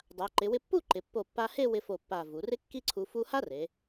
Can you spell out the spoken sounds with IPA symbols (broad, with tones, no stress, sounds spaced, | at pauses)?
dˤ a˩˧ ǃ ɪ˩˧ w ɪ˧ pː u˥˧ ǃ ɪ˩˧ pː o˧˩ pː a˧ h e˥˧ w ɪ˧ f o˧˩ pː a˧˩ v u˩˧ r ɪ˥ kː i˥ ǀʰ u˧ f u˥ h a˥ r e˩˧